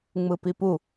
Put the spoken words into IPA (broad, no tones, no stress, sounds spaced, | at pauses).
ŋ͡m ɯ p i p u